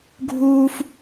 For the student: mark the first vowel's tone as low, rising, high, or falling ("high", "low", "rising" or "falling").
high